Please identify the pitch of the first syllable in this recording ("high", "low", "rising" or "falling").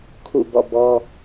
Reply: falling